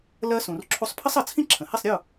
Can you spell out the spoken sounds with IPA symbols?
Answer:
lɜ˧ sũ˩r ǁʰu˧sˤpʰə˥sˤʌ˩t͡sʰĩ˥ ǁʰə̃˩hi˥˩sˤ ɾʲʊ˥˩

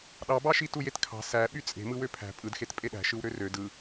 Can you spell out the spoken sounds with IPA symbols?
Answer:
ɗɑbɑʃi tujetkʰɑ̤ sæ ɓyt͡sʼe̤ mɯwøpʰæ̤ pʼɯdxet pʼeɗæ̤ʃɯwɾø rø dɯ

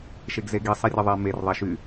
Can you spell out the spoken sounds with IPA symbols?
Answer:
ʃeɡzeɡi sˤirʲəðˤɛ mer ðˤɛʃy

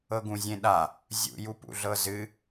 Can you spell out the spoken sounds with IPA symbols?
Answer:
ɤɡũzʲẽɗa | zʲṵ jupṵɮɤzɨ

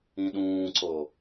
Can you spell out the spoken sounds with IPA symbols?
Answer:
ĩɗũːǀo

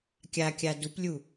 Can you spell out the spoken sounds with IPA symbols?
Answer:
kʲakʲa duplʲu

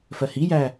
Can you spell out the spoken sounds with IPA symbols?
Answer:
fɜhijæ

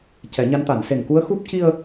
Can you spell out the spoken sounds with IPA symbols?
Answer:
cɛ˨˩˦ɲa˧˥nt̪a˨˩˦n se˨˩ŋku˧˥ə̯xu˦˥p̚ ci˧ə̯

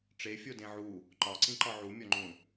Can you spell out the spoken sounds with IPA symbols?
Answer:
ʈ͡ʂefʲo dẽʕu | ǃɒǀĩǃɒ ʕumʲɒŋ͡ǃũ

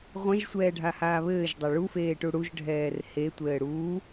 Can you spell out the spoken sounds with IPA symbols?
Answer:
ʁʷɛ̃ʒsʷɛːɖʱahaː βɘːʒdˤɛ ɭufeːʈu ɽuʒɖʱɛːr hetʷɘː ɽuː

